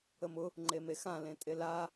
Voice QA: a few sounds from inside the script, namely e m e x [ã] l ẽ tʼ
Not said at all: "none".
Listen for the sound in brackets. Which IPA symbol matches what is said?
ã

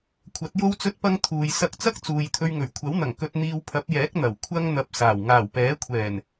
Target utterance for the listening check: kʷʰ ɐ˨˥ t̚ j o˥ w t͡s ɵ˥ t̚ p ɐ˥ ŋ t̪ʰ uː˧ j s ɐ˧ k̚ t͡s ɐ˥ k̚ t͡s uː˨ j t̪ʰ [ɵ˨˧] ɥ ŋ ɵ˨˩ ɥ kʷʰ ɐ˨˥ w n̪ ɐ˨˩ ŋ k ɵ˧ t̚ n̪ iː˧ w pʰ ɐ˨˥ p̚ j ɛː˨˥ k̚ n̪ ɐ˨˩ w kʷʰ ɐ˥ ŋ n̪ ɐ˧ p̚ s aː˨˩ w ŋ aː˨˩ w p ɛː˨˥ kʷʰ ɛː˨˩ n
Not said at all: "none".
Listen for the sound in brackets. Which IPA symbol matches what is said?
ɵ˧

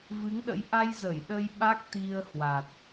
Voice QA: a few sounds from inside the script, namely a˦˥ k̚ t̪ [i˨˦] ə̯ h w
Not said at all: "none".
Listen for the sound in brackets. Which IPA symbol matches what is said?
i˧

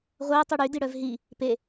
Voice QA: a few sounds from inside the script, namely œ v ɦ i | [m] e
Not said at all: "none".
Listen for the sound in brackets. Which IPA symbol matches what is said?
p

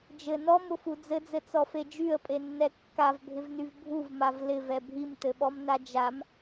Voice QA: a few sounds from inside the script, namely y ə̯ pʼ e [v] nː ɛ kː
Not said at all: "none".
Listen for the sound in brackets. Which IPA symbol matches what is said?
none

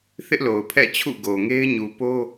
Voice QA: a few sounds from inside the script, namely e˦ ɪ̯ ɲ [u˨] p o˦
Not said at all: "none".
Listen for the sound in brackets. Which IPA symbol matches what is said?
u˨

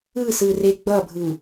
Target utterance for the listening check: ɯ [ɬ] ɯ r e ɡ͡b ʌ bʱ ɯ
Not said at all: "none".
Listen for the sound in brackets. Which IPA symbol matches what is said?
s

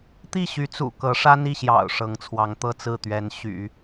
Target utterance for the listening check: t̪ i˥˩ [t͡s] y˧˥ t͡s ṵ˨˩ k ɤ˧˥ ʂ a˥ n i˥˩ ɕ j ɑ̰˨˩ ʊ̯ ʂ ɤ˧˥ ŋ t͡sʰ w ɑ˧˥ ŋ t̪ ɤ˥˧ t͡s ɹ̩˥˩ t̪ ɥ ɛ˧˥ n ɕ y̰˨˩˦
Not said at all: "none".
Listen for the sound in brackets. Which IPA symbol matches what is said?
ɕ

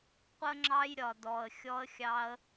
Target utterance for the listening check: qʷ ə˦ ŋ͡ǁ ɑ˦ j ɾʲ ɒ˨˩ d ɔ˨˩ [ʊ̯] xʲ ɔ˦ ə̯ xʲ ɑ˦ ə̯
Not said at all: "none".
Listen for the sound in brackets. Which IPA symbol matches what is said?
ə̯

